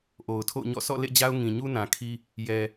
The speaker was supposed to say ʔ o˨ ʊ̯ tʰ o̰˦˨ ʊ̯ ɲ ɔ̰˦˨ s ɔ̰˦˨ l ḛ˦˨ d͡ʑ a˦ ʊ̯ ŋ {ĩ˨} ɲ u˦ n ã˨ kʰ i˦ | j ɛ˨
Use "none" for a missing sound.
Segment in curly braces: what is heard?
ĩ˨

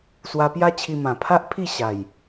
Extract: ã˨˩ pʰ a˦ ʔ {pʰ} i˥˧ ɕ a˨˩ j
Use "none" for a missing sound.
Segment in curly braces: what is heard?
pʰ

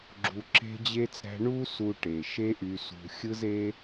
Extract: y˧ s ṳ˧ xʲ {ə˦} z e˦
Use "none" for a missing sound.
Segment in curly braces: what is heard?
ɯ˦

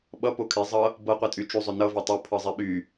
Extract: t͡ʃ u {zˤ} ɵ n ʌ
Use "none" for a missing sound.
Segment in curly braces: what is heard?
zˤ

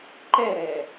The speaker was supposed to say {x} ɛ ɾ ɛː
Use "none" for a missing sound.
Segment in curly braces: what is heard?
ǃ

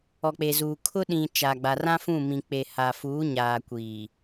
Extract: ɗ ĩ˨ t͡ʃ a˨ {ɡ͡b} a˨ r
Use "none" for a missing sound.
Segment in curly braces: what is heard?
ɡ͡b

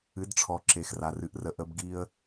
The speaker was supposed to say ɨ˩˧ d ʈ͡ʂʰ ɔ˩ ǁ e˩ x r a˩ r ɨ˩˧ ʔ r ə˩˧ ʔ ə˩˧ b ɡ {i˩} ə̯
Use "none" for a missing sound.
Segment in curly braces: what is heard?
i˧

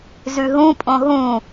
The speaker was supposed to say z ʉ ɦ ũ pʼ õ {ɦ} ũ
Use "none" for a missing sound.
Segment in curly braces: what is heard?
ɦ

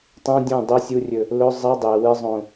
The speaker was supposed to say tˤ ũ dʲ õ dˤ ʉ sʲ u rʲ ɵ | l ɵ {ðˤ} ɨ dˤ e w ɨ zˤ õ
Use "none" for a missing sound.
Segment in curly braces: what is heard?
zˤ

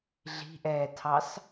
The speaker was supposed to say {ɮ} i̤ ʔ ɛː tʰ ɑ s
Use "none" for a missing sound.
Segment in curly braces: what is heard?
ɮ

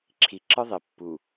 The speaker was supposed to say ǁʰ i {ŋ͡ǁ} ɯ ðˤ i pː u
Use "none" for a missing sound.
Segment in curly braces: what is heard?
ǁ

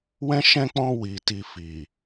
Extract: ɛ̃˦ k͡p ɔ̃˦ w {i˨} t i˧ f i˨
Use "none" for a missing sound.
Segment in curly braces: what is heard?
i˧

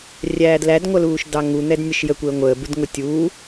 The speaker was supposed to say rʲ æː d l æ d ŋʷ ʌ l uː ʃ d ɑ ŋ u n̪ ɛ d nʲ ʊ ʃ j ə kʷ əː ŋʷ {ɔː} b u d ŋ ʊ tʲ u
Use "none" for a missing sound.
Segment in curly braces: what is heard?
əː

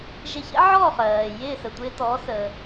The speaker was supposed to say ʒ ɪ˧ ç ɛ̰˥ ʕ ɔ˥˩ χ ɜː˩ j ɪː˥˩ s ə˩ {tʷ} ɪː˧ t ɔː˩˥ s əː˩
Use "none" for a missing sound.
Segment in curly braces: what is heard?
tʷ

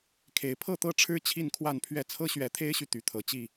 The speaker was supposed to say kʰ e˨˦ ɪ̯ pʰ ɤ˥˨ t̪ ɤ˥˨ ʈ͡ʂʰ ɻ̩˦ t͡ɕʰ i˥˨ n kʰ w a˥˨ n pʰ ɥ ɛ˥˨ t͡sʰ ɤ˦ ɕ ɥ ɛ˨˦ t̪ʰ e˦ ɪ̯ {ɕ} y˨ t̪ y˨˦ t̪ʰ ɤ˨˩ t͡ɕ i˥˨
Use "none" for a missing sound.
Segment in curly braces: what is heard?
ɕ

